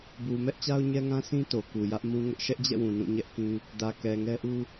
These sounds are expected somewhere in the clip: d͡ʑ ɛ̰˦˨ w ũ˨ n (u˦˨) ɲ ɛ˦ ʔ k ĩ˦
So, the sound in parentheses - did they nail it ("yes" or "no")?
no